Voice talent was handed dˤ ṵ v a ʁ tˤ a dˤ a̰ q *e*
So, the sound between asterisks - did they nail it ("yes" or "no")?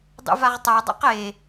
yes